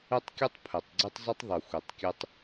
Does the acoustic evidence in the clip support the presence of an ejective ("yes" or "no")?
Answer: no